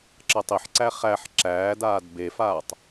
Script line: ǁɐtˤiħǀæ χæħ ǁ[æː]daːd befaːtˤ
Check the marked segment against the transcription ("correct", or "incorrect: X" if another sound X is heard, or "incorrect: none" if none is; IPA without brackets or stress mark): correct